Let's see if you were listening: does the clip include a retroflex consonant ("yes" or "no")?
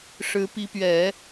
yes